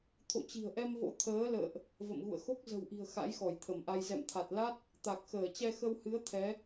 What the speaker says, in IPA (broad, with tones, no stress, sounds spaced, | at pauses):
t̪ʰ o̰˧˨ t͡ɕ i̤˨˩ ə̯ ʔ ɛ˧ m v o̰˧˥ t̪ʰ əː˨˦ l ə̰ː˧˨ ʔ | v ə̰˧˨ m ɣ ṵ˧˨ ə̯ x o˦˥ k̚ z ə̤˨˩ w ʔ i̤˨˩ ə̯ x a̰˧˥ j x ɔ˧˩ j t̪ʰ ə˧˩ m ʔ a˧ j z ɛ̰˧˨ m t̪ʰ a˨˩ t̚ l a˦˥ t̚ | t̪ a˨˩ k̚ x əː˧˩ t͡ɕ ɛ˧ x ə˧ w h ɨ˨˦ ə̯ t̪ʰ ɛ˨˦